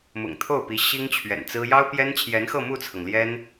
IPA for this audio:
mʊ̰˨˩ŋt̪ʰo˥˩ʊ̯pi˧˥ ɕi˥ŋt͡ɕʰɥɛ̰˨˩nt͡sɹ̩˥ jɑ˥ʊ̯pjɛ˥nt͡ɕʰjɛ˧˥nxɤ˥˧ mu˥˩t͡sʰɤ˩ŋ ljɛ˥n

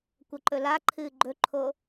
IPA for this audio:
kʷɐǃɵlaǃʰɨː ɡ͡ǃɵǃʰo

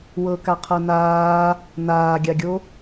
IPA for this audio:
wɤ kaqʰɤnaː | naːɡʲaɡʲo

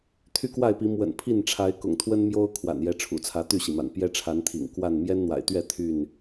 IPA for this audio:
t̪ʰy˦kwa˥˨ɪ̯pi˨˦ mwə̰˨˩npʰi˥˨nʈ͡ʂʰa˨˦ɪ̯ kʊ̰˨˩ŋt̪ʰwə˦nmjo˦ʊ̯ kʰwa̰˨˩njɛ˨˦ʈ͡ʂʰṵ˨˩t͡sʰä˨˦ t̪y˥˨ɕi˩ma̰˨˩n pjɛ˦ʈ͡ʂʰa˨˦nt̪ʰḭ˨˩ŋ kwa˥˨n mjɛ˦nn̪wa̰˨˩ɪ̯t̪ɥɛ˥˨ t̪ʰy˥˨n

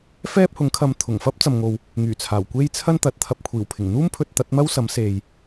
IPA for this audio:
fɛː˥p̚hʊ˨˥ŋkʰɐ˧m t̪ʰʊ˨˩ŋfɐ˥p̚ t͡sɐ˨mŋo˨w | ŋyː˨˩t͡sʰaː˨˩w kʷe˥jt͡sʰɐ˥n t̪ɐ˨˥t̚t̪ʰɐ˧p̚ kʷʰiː˨˩wpʰɪ˨˩ŋn̪uː˥m pʰɵ˧t̚t̪ɐ˨˥t̚mɐ˥w sɐ˨˥mse˨j

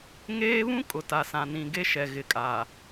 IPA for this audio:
ŋeː˦βũ˦ kʼʊ˨ta˨sã˨nĩ˨ ɡe˦ʃɛ˨ ɣɪ˨kʼa˨

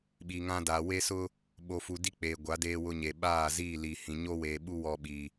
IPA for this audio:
ɓi˨ŋã˦daː˨ we˦sʊ˦ | ɓo˨fu˨ di˦k͡peː˨ɡʷa˨˦ deː˦wʊ˦ɲe˨ ɓaː˦˨ ziː˦˨li˨ hĩ˨ ɲo˦weː˨ɓu˦ wɔ˦ɓiː˨

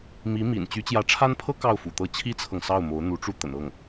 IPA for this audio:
mi˧˥ mḭ˨˩n t͡ɕy˧˥t͡ɕjä˧˥ʈ͡ʂʰa˥npʰɤ˥ kɑ˥˩ʊ̯fṵ˨˩t̪ɤ˥ t͡ɕʰi˥t͡sʰɤ˨ŋ sɑ˥˩ʊ̯ mo˧˥ʊ̯ n̪u˧˥ʈ͡ʂu˥˩ t̪ə̰˨˩nɤ˥˩ŋ

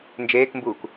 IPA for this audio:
nd͡ʒeːkmbuːk

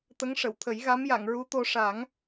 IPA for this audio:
t̪ə˧˥ŋʂə˨˩˨wt̪ʰə˨˩˦j ɣa˧˥mja˨˩˨ŋɹu˧˥t̪o˧ ʂa˨˩˦ŋ

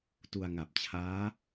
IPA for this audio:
tu˧a̯ŋa˨˩p̚t͡ɕʰaː˦˥

